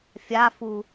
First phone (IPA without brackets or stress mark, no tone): fʲ